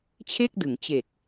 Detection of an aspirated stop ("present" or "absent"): present